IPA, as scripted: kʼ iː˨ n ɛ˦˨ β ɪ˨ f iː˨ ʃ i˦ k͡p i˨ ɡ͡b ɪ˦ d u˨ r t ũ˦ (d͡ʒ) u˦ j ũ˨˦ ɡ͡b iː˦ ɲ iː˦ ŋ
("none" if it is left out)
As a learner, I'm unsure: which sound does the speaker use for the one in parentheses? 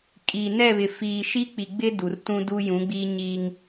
d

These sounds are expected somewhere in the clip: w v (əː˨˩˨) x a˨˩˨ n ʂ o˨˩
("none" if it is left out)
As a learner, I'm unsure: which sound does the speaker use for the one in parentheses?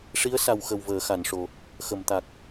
əː˨˩˨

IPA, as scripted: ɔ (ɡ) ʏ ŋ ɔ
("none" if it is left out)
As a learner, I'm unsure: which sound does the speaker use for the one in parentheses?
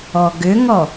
ɡ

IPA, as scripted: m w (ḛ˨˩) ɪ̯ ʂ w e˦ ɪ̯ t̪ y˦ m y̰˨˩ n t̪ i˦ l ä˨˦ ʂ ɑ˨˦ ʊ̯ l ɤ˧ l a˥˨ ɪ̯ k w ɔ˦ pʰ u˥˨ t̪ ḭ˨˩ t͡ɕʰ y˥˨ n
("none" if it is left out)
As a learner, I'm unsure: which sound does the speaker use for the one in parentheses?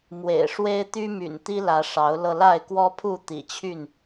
ḛ˨˩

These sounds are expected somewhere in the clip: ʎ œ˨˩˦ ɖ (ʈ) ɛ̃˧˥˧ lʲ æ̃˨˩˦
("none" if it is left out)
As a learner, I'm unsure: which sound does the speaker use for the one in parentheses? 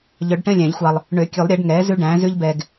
ʈ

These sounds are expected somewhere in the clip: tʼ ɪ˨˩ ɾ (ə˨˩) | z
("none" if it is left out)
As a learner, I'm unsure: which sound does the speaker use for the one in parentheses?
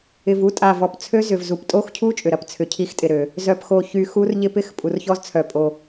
ø˨˩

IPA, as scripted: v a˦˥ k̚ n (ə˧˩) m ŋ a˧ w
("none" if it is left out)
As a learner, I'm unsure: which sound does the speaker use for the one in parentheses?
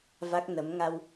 ə˨˦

